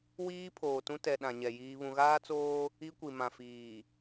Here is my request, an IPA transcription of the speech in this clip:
w iː˦ pʰ oː˨ t ũ˦ t ɛ˨ ɗ ã˨ ɲ ɛ˨ j iː˦ β ũ˦ ɣ aː˦ t͡s oː˦ | i˦ kʷ i˨ m ã˨ f iː˨

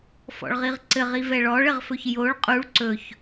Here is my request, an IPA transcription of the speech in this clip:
f ɔ̰ ɭ ʁ i ʁ ǀ ɘ ʁ i v ɛ ɭ ɔ ɭ ɘ ʁ f ɵ ç j o ɭ qʼ u ɭ ǀ ɵ ç

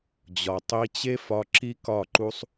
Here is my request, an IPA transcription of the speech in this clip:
d͡ʑ ɒ˨ tˤ i˧ t͡ɕ e˦ f ɒ˧ ǁ i˦ k ɒ˦˨ ǃ u˦ sˤ

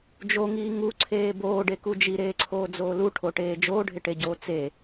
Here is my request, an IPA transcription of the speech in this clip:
d͡ʒ o ŋ iː ŋ u ǀʰ eː b oː ɖ e k u d͡ʒ i ɾ eː ǀʰ oː d͡z oː l u ʈʰ o ʈ eː d͡ʒ oː ɖʱ ɪ ʈ e ɟ oː t͡s e

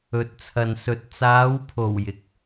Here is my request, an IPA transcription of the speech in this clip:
ɵ˨ t̚ t͡sʰ ɐ˨ n s ɵ˨ t̚ t͡s aː˨˧ w pʰ o˨˩ w j ɪ˨ k̚

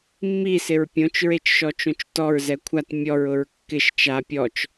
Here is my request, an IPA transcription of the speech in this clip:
mː i s ɪ ɹ pʲ õ t͡ʃ ɹ e t͡ʃ ʃ ɔ t͡ʃ õ t͡ʃ t ɔ ɹ z ɛ kʷʰ a t mʲ ɔ ɹ ʊ ɹ kː ɪ ʃ t͡ʃ a pʲ ɔ t͡ʃ

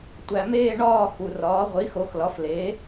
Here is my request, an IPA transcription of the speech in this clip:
tʷ æ˩ m eː˥˨ ɳ ɒː˥˨ x u˩ r ɒː˩˥ ʁʷ i˩˥ x o˩˥ x l ɒ˩˥ f l e˩˥

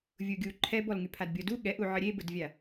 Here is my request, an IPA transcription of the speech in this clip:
vʲ u ɡʲ u ǃʰ ɛ b ɔ l ŋ y pʰ a d bʲ ɔ d u ɠ ɛ ʔ u ʕ ə ɾʲ e b ə d vʲ a

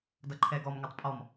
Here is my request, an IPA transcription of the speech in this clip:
d ʌ ǃʰ ɛ ɡ ɔ m ŋ o tˤ pʼ ɔ m

